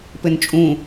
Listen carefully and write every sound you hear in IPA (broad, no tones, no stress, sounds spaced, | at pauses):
p ɘ n t͡ʃʼ ũ